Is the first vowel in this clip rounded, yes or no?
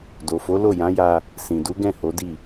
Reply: yes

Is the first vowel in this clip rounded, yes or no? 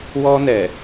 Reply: yes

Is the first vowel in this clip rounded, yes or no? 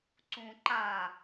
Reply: yes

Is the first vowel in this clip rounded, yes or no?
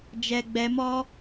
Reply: no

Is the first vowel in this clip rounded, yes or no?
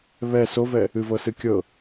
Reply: no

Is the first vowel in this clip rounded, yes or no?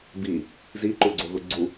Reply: no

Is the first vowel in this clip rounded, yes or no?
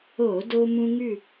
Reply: yes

